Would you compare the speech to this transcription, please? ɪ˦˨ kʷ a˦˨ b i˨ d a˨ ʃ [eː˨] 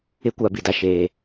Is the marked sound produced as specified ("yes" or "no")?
yes